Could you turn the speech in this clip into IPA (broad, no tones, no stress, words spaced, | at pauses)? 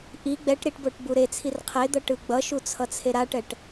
ʔi ɡ͡bɛʈ ɾiʈboʈ buɾet͡sʰir qʰed̪ʌ ʈɯɡ͡bʌʃu t͡sʰʌt͡sʰeɾaʈɛʈ